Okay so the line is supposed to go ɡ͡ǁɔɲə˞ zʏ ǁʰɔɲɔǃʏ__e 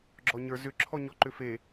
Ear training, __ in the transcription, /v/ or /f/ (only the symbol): f